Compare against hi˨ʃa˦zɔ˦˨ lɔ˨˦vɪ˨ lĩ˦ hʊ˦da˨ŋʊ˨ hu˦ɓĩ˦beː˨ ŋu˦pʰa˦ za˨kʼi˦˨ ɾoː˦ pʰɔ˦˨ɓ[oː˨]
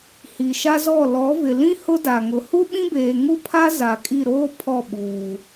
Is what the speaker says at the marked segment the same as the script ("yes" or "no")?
no